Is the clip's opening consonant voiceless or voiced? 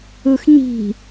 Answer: voiceless